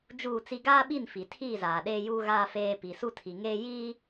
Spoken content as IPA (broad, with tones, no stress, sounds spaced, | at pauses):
d͡ʒ uː˦˨ t͡s i˦ ɡ aː˦ ɓ i˦˨ n f i˨ tʰ iː˦˨ z aː˨ ɗ eː˦ j uː˦ ɣ aː˦ f eː˦ p i˨ s u˦ tʰ i˨ ŋ eː˦ j iː˦